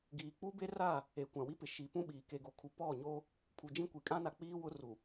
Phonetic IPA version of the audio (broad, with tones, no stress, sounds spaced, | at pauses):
ɡ iː˨ k͡p u˦ b e˦ r a˦˨ | e˨ kʷ ã˨ w i˦ p ɪ˨ ʃ i˨ p ũ˦ ɓ iː˨ k e˨ ɡ o˨ kʰ u˨˦ p ɔ˦˨ ɲ o˦ | pʰ u˨ d͡ʒ ĩ˦ kʷ i˨ kʼ ã˦ n a˨ k͡p iː˦ w ʊ˦ r u˨